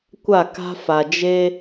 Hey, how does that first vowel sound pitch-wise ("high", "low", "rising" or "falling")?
falling